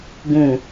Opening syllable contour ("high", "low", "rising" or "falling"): low